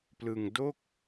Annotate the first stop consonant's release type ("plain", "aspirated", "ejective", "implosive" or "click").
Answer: plain